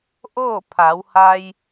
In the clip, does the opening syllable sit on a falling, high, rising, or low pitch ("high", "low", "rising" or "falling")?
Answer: falling